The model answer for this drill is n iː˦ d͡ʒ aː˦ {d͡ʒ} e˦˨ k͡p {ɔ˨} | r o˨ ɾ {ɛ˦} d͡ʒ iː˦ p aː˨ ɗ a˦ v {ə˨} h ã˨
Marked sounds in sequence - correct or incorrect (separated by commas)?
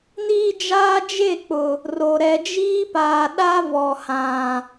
correct, incorrect, incorrect, incorrect